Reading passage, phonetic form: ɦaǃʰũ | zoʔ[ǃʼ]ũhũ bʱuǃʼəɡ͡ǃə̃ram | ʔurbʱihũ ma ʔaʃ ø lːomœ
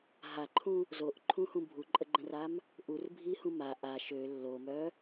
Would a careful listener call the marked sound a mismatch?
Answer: yes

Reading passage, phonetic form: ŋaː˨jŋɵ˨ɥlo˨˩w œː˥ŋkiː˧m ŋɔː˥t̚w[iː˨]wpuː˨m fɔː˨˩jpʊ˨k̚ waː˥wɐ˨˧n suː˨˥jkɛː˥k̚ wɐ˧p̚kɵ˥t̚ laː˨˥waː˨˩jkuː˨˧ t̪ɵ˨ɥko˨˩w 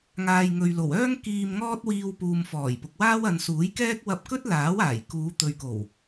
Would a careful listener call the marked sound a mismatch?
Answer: yes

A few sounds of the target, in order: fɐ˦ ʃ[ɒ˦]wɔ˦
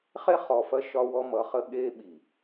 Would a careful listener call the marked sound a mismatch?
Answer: no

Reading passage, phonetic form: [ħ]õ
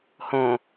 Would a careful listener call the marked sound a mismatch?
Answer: yes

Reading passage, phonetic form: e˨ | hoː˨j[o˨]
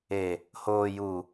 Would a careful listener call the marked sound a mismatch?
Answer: yes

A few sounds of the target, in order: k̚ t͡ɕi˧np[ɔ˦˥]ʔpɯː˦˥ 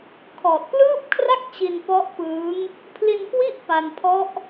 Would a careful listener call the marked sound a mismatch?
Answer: no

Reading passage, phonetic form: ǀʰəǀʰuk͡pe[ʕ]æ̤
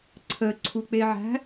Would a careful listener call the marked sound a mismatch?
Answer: no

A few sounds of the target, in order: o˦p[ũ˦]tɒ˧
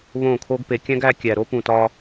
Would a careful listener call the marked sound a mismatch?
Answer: yes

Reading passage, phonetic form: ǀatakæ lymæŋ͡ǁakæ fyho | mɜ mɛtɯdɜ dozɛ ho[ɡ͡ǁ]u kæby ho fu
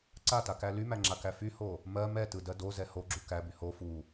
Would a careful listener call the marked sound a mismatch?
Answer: no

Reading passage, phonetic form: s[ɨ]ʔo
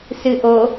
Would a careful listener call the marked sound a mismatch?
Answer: no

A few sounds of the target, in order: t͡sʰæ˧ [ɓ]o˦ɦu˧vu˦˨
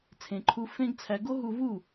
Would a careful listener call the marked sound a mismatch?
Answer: yes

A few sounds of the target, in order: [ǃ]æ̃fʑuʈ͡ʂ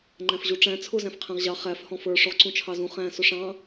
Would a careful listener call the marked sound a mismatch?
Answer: yes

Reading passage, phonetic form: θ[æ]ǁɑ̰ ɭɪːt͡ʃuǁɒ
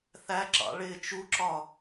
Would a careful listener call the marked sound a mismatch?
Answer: no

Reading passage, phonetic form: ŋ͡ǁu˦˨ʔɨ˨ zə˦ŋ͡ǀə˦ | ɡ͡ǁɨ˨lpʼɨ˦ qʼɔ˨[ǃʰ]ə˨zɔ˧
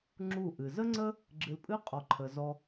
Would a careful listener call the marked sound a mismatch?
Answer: no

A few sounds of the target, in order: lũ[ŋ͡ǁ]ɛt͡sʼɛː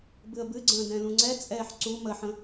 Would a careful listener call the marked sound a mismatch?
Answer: yes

